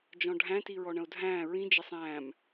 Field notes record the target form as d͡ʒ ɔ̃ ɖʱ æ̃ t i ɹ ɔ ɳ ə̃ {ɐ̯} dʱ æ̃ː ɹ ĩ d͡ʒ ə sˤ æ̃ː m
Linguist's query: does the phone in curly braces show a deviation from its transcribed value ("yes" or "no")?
yes